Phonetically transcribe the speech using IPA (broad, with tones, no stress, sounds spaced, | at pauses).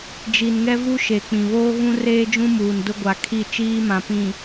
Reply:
d͡ʒ i˨ n ŋ ɛ˦ v u˦ ʃ e˨ k͡p ĩ˨ β oː˦ ɣ ũ˦ r eː˦ d͡ʒ ũ˦ m uː˨ n d ʊ˦ ɡʷ a˨ kʰ i˦˨ t͡ʃ iː˦ m ã˨ p ĩ˨